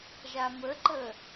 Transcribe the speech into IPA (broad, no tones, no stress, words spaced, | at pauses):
ʒaməǃə